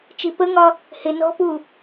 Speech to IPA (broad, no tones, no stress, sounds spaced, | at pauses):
t͡ʃ i p ə ŋ ɒ | h ɪ n ɔ̤ p u